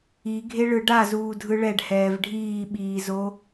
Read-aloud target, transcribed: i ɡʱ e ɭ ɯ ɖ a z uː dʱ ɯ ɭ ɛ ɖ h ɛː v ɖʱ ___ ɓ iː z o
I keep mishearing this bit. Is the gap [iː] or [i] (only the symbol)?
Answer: iː